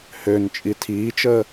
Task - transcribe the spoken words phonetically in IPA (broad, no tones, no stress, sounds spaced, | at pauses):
h ø n t͡ʃʼ i tʰ iː t͡ʃ əː